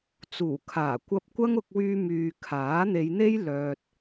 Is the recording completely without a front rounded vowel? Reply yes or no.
no